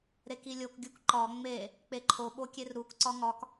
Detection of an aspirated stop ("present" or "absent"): present